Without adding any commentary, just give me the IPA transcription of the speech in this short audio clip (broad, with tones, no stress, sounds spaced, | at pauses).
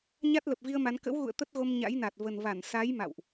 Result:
ɲ a˦˥ t̚ l ə˨˩ p̚ v i˧ ə̯ m a˨˦ n k ə̰˧˥ w ɣ ṵ˧˨ ə̯ t̪ ə˦˥ t̚ ɣ o˧ m ɲ a̰˧˥ j n a˨˩ t̚ v ə˨˩ n v a˧˩ n s a˨˦ j m a̰˧˨ w ʔ